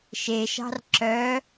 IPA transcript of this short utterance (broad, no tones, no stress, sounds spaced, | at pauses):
ʃ e ʃ ɑ̤ r ǁ œ